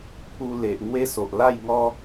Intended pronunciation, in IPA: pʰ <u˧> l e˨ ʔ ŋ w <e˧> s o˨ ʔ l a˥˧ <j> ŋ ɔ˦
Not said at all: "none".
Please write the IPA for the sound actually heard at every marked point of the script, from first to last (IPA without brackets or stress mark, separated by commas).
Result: u˧, e˦, j